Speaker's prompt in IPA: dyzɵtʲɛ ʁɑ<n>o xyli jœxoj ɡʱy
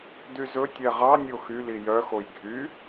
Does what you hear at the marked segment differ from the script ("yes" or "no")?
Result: yes